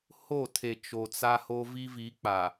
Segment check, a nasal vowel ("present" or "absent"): absent